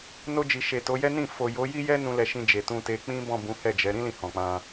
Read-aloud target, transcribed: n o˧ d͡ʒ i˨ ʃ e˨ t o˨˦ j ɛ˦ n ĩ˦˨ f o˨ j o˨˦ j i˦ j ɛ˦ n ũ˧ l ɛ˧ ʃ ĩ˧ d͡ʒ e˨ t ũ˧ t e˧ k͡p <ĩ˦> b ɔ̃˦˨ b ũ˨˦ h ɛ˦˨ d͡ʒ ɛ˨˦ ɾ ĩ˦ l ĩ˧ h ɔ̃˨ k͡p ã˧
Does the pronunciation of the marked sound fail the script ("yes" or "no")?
no